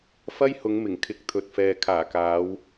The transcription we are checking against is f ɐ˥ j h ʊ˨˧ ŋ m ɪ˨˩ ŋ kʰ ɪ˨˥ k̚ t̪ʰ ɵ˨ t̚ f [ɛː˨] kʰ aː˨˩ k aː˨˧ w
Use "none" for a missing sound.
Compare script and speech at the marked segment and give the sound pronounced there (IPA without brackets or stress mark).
ɛː˨